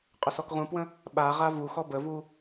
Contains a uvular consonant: yes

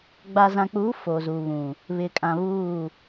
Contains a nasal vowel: yes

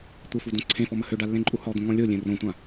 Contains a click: yes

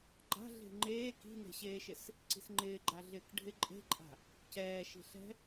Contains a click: yes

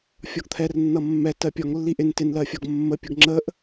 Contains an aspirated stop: yes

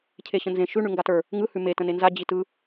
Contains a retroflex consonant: yes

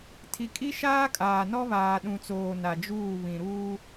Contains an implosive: yes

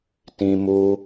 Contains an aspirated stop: no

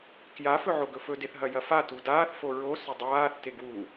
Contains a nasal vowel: no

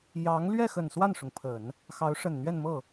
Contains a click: no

